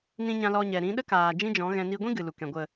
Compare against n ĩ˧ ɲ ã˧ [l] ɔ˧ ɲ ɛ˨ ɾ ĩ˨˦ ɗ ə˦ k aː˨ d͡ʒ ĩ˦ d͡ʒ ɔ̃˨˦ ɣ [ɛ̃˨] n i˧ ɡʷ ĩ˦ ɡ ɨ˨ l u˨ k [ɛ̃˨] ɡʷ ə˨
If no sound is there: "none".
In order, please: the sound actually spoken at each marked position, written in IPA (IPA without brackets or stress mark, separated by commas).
l, ɛ̃˧, ɛ̃˨